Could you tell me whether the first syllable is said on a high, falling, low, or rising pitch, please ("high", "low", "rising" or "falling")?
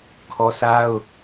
high